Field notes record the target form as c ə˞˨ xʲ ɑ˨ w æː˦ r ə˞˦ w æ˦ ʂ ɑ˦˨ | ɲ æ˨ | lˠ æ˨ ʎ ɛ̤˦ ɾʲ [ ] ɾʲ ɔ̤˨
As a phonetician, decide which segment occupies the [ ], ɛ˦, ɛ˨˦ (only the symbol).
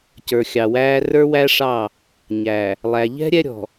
ɛ˦